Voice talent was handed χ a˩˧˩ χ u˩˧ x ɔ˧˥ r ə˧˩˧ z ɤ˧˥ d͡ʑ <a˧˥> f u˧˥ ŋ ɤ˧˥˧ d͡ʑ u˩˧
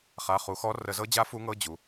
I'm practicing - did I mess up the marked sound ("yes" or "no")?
no